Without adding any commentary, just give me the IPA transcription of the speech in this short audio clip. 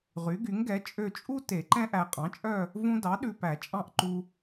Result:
ʁ y˩˥ ɡ y˩˥ ŋ ɡ ɛ˩˥ t͡ʃʼ ø˦˨ t͡ʃʼ u˥ t e˨˩˦ ǃ ɛ̃˥ ʔ æ˨ qʼ ɑ̃˩˥ t͡ʃʼ œ˦˨ | v ũ˥ d ɑ˩˥ ɗ ʉ˨ p æ˨˩˦ t͡ʃʼ ɑ̃˦˨ ʔ ǃ u˨

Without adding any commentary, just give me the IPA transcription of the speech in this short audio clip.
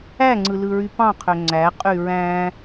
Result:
æ ŋ͡ǀ ɯ l ɯ ɹ y p ɑ̃ qʰ ø ŋ͡ǀ æ qʼ y ɹ æ̃

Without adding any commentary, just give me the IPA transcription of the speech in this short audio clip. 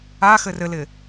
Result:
a x ɘ r ɘ l ɪ

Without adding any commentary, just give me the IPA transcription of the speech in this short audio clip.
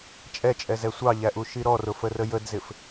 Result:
t͡ʃʼ ɛ t͡ʃʼ ɛ z ɛ sʷ ɑ ʎ æ ʔ u ʃ i ɾ ɔ r ʊ f ə r ə j ə d z ɪ f

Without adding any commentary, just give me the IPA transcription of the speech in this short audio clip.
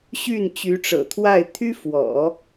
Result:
ɕ y˥˩ n t͡ɕ y˧˥ ʈ͡ʂ ɤ̰˨˩ t̪ʰ w a˥˩ ɪ̯ t̪ʰ y˥ f w ɔ̰˨˩˦

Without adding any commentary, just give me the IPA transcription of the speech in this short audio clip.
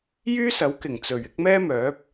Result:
j yː˥ s ɐ˨˥ w k ɪ˨˩ ŋ t͡s ɵ˨˩ ɥ ɪ˨˥ k̚ m ɛː˥ m œː˨˥ p̚

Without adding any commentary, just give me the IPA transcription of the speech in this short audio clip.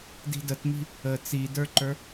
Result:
d i̤ d ə t m i̤ | ə t͡s i d ə˞ ǃ ə˞

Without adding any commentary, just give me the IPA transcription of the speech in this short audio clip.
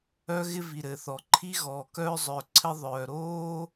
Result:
œ˥ ɣ ɪ˥ v i˩ ɾ ɘ˩ θ ɔ˩ ǃʰ i˥ ɣ ɔː˩ k œː˥ zˤ œː˩ ǀʰ ɘ˥ ðˤ œː˩ ɾ oː˥

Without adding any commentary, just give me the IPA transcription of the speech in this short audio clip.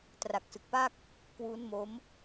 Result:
t r a˨˩ k̚ s ɯ˨˩ k̚ p a˥˩ k̚ | k w u˦˥ n m o˦˥ m

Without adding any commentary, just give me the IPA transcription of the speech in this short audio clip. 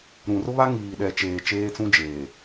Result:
ɾ ũ˨ r ʊ˦ β a˦ ŋ iː˨ ɗ ɛ˨ t͡ʃ eː˨ t͡ʃ eː˦ t͡s ũ˦ d͡ʒ eː˨

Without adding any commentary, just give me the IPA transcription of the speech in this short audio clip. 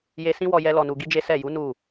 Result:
j e˧ s ĩ˦ w ɔ˧ j ɛ˦ l ɔ˧ n u˧ ɡ i˦ d͡ʒ e˦ s ɛ˦˨ j u˨˦ n u˦˨

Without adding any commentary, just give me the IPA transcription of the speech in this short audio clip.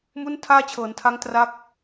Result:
m u˥˩ n tʰ aː˥˩ t͡ɕʰ ɤː˩˦ n tʰ a˦˥ ŋ t r a˥˩ k̚

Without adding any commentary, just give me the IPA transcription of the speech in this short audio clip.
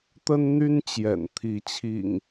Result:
t̪ ə˦ n n̪ y˦ n t͡ɕ j ɛ̰˨˩ n t̪ʰ i˨˦ t͡ɕʰ ḭ˨˩ ŋ

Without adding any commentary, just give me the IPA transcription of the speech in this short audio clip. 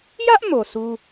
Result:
j ä˦ ʔ m o˨ sʰ u˦

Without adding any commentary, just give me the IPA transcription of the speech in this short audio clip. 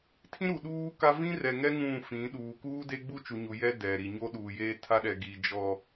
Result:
tʰ ĩ˦ ɾ u˨ ɗ uː˦ k a˦ v ĩ˦ r ɛ˨ ŋ ɛ˦ ŋ ũ˦˨ f ĩ˨˦ ɗ uː˨ k uː˦ d e˦ ɡ͡b u˦ t͡ʃ u˨ ɲ u˨ j ɛ˦ d ɛ˨ ɾ i˨ ɲ o˦ ɗ uː˨ j eː˦ tʰ a˦ ɗ ɛ˨ ɡ i˨ d͡ʒ ɔ˨

